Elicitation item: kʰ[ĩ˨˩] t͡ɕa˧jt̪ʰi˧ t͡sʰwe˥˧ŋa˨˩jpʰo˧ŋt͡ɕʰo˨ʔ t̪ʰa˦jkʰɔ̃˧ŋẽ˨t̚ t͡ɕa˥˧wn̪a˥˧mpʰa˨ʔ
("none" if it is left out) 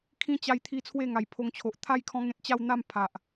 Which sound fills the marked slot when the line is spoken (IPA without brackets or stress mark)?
ĩ˧